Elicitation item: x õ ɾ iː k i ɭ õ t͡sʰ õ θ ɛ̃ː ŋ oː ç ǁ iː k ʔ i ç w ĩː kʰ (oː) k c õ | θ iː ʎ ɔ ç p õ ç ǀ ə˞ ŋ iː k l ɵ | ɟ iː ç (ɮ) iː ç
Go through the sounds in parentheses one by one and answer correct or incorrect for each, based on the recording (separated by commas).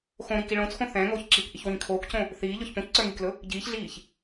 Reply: correct, correct